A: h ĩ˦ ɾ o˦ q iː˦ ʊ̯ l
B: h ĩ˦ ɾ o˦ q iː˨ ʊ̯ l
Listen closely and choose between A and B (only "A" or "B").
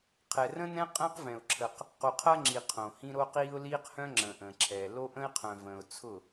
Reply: A